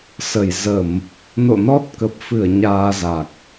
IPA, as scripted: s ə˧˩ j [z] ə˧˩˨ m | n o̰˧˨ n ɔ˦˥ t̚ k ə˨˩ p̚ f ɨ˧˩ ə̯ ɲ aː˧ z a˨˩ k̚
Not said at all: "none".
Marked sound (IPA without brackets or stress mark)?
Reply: z